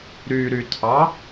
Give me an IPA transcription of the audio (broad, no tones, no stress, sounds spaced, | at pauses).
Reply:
ɾ y ɾ y tʰ ɑ